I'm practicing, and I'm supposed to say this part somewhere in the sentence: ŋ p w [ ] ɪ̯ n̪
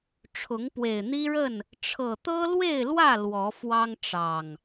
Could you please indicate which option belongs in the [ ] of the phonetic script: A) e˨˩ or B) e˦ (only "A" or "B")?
A